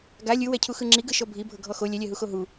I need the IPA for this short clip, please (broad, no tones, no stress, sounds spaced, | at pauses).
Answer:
ɡ a lʲ ɯ w ɛ cʰ u x ɯ ŋ͡ǁ i ɡ ɯ ʃ ɔ bʱ i bʱ ɤ ɡʱ ɔ x o lʲ ɛ lʲ ɛ ɦ u x o ɦ u